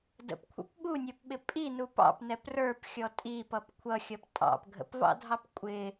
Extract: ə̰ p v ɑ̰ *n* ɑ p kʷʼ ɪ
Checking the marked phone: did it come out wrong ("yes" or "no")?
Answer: yes